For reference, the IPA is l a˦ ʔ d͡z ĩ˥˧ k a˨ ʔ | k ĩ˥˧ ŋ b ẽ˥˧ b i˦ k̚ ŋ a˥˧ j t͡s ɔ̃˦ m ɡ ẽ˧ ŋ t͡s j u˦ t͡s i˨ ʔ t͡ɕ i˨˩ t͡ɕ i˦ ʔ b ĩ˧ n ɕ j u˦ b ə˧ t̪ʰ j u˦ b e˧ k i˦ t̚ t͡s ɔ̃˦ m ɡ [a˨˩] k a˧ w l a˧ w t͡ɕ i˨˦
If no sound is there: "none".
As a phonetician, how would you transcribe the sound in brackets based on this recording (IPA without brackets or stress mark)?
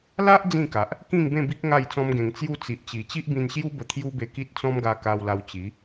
a˧